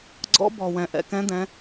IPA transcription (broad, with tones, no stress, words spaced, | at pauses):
ɡ͡ǀɔ̰˨˥ bɔ˩wɛ̃˩ ʔɛ̰˩kɛ̃˨˥d̪ɛ̃˩˧